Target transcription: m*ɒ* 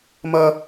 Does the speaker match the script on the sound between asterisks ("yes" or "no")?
no